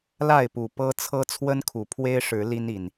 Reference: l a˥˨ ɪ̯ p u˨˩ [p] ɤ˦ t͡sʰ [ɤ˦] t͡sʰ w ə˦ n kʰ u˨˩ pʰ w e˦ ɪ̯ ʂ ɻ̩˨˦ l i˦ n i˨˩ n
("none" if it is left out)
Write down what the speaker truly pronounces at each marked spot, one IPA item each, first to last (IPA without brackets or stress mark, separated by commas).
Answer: p, ɤ˦